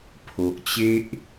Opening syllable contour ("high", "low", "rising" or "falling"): low